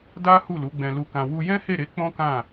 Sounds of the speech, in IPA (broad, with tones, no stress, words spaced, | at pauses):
da˦ hu˦˨lu˨˦ɡ͡bɛ̃˧ lu˧kã˧ wu˧jɛ̃˦he˦˨ɾe˨˦ k͡pɔ̃˦kã˦˨